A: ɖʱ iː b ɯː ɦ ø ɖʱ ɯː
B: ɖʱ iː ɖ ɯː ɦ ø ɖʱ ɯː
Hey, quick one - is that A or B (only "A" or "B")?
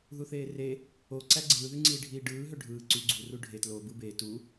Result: B